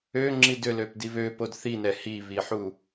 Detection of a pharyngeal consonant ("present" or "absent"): present